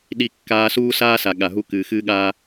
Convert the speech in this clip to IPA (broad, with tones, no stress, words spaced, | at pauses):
ɗi˦ kːaː˦suː˥saː˥sa˨ ɠa˨ɦu˦ kɨː˨xɨː˥ɠaː˥